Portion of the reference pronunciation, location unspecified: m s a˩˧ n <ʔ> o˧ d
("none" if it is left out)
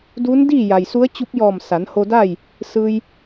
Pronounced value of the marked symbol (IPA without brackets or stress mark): h